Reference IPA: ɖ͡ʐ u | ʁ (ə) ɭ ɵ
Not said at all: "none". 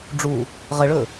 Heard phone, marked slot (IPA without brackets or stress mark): ə